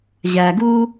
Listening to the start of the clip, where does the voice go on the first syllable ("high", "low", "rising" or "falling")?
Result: low